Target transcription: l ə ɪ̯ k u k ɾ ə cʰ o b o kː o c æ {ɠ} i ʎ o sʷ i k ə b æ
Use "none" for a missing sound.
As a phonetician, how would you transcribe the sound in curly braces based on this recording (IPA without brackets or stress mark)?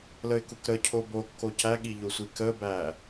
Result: ɠ